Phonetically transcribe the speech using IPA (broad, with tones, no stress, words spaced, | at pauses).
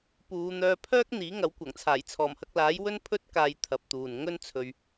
puː˨˧n̪œː˧ pʰœː˥k̚n̪iː˨˥ŋɐ˨˥wkʷɐ˨˩ŋ t͡sʰaː˨˩jt͡sʰɔː˨˩mhɐ˧k̚laː˨˥j wɵ˥npʰɵ˥t̚kaː˧j t̪ʰɐ˨˥p̚t̪uː˨nŋɵ˥n t͡sʰɵ˨ɥ